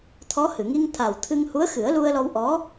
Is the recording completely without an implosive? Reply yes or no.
yes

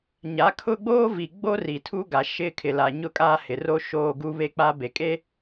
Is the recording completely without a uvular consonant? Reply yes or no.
yes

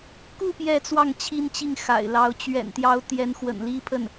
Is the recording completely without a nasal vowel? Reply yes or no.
yes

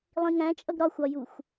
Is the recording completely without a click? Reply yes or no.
yes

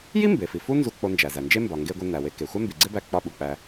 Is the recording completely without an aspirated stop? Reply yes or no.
yes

